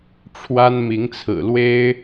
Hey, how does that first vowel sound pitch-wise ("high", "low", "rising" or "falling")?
high